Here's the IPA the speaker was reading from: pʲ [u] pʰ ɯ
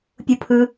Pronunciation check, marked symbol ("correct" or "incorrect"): correct